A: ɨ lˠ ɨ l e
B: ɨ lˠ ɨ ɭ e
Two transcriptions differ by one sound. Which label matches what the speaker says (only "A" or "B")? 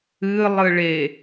B